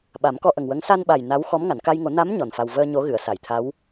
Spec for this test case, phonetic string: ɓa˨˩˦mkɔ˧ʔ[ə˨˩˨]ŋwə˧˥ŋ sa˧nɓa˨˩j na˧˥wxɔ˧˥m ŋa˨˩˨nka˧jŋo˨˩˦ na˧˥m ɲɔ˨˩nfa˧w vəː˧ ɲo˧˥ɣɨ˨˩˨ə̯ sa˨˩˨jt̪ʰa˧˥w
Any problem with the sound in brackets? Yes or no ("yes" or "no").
yes